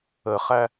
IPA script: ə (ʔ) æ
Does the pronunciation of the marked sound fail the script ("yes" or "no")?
yes